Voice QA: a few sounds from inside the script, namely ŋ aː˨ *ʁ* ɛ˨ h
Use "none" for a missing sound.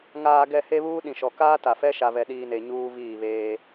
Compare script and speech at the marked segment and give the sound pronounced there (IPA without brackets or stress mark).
ɡ